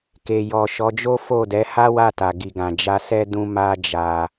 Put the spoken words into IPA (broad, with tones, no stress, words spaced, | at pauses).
ke˨jɔ˨ ʃɔ˨˦d͡ʒo˦fo˦˨ dɛ˨˦ha˦wa˦˨ta˨ ɡi˨ɡã˨d͡ʒa˧sɛ˦ dũ˦ ma˦d͡ʒa˧